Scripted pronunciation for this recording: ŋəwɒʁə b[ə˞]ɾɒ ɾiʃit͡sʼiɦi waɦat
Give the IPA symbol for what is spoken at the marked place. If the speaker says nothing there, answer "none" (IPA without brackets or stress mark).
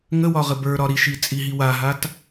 ə˞